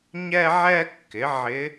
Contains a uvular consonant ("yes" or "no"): no